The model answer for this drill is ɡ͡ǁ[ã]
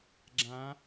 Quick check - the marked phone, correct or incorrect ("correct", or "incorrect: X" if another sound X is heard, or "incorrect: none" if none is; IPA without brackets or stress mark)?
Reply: correct